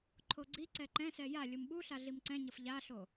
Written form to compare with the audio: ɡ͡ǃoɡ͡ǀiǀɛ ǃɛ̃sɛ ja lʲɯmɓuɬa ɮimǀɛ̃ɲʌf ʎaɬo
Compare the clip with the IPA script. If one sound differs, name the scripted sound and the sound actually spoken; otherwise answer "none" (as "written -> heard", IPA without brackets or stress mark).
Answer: ɡ͡ǃ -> ǃʰ